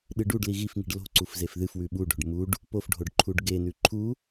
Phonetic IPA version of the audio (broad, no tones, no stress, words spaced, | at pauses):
ɗɨɖuɖli ɣifŋi̤ɖ lo̤ǀuf zefðɨfwʉ ɓuɖo̤ɖ muɖ | pofɖʱoɖ ǃʰuɖɡenʉ ǃʰu